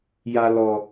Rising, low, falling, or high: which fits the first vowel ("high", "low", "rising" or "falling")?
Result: low